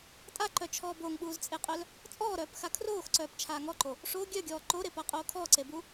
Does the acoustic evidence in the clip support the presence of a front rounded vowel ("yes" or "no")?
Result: yes